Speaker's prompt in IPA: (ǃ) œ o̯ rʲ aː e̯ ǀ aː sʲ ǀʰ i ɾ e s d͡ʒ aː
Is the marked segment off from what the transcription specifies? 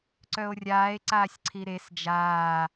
yes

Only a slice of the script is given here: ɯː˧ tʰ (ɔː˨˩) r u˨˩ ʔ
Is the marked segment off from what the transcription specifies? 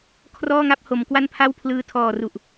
no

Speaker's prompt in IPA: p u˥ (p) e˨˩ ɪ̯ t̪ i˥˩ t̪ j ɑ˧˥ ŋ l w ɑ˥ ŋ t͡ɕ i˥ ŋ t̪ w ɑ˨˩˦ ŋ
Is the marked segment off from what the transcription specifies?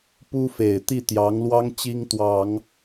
yes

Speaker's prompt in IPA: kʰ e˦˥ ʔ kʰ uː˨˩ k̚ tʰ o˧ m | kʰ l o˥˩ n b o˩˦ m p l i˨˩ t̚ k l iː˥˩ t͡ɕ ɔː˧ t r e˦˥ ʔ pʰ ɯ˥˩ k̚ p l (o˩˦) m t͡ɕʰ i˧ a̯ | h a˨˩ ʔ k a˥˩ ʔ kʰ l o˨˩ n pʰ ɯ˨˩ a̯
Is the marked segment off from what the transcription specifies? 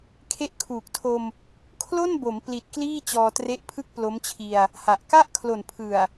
yes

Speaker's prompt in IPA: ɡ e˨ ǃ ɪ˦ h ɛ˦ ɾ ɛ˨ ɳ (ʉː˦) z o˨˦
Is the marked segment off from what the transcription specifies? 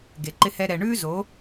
no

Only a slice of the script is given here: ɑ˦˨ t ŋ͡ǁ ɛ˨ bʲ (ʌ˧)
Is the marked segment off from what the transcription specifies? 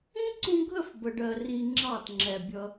no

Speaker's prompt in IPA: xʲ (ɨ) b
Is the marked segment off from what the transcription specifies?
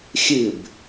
no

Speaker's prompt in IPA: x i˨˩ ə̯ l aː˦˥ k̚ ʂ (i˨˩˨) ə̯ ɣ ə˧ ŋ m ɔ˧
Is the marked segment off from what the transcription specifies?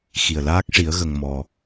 yes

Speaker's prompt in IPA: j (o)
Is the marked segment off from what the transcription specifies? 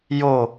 no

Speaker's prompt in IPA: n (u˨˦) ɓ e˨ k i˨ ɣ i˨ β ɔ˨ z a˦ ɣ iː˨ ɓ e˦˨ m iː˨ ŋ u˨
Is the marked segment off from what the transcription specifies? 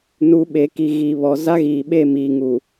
no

